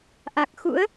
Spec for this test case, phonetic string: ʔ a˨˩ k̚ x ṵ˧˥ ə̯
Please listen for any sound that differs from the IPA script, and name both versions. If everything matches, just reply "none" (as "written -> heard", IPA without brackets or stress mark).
none